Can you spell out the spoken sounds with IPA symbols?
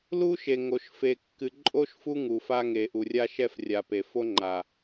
l u˦ ʃ e˨ ŋ o˨ ʃ f e˨ kː ɨ˨ ǃʼ o˦ ʃ f u˦ ŋ u˨ f a˦ ŋ e˨ ʔ u˨ rʲ a˦ ʃ ɛ˦ f rʲ a˨ p e˨ f o˦ ŋ͡ǃ a˨

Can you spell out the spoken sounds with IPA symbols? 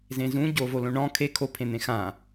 z ẽ z ũ ɟ o v o l õ ɳ ɔ̃ kʰ e kʰ o pʰ ẽ n̪ ẽ x ã

